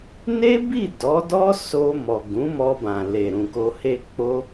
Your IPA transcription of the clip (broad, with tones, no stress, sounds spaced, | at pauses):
n e˦ b i˦˨ d ɔ˨˦ d ɔ˦ s o˧ m ɔ˨ ɡ ũ˨˦ m ɔ˧ b ã˨ l e˨ ɾ ũ˨ k o˧ h e˦ k͡p o˦